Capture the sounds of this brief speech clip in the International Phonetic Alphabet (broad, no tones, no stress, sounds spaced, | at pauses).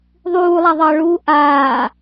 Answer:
ðˤ uː lˠ a ðˤ ɑ ɭ uː ʔ aː